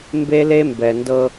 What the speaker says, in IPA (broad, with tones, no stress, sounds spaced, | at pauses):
m b e˦ l e˦ m b ɛ˨ n d ɤ˦